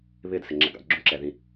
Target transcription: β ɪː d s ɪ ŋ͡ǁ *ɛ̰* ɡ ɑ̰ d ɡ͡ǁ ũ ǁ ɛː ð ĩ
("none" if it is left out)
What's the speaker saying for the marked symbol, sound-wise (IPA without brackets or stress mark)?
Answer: ɛ̰